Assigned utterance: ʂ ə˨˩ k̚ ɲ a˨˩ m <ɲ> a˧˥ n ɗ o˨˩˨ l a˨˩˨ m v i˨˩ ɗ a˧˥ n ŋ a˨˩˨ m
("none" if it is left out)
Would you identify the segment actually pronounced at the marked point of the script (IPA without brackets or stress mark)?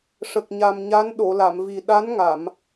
ɲ